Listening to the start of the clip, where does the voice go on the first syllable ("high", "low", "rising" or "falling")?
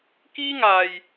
high